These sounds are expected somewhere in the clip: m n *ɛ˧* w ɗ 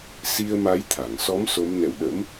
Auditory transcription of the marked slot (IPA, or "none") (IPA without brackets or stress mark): ɛ̰˧˨